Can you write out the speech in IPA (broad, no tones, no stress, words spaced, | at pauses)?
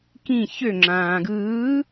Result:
kĩ çø ŋ͡ǁãːɡɯː